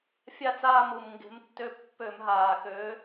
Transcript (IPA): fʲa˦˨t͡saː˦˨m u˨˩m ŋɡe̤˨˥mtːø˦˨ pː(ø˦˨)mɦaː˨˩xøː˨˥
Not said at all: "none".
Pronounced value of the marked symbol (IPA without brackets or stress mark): ø˧˩˧